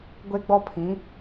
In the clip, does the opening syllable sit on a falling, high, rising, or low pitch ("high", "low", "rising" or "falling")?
high